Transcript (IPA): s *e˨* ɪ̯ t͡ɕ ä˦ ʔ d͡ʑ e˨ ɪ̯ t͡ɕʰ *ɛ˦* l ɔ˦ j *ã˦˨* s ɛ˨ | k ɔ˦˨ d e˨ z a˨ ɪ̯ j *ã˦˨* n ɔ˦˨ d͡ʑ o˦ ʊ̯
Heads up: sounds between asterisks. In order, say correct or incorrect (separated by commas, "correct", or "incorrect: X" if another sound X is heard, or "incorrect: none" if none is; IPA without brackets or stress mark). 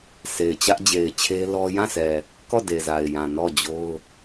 correct, incorrect: e˦, correct, incorrect: ã˨